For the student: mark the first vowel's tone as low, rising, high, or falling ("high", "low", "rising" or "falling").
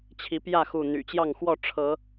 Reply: rising